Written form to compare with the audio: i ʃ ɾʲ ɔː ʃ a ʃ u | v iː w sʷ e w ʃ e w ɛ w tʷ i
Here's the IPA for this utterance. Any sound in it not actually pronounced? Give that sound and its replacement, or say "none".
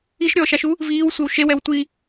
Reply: none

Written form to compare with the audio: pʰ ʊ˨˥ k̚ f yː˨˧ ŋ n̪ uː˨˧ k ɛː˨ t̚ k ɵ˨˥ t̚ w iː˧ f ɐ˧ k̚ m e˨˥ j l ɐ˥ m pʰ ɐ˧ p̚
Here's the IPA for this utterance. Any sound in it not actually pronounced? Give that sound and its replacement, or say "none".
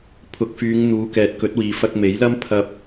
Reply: iː˧ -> iː˨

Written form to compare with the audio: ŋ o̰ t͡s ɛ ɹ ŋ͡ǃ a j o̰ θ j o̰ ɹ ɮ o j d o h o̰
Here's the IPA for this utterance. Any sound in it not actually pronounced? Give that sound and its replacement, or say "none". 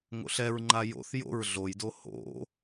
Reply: t͡s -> ɬ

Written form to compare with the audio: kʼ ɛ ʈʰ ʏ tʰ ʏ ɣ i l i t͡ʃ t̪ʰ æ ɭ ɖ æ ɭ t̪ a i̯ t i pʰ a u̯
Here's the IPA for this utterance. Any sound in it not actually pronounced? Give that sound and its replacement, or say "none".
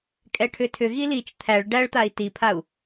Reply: none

